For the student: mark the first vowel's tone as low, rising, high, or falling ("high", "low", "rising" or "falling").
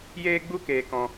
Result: high